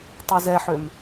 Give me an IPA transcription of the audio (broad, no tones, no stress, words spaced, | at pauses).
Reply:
tˤezɛħøm